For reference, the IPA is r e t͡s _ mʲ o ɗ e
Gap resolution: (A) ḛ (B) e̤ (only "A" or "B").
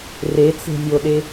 B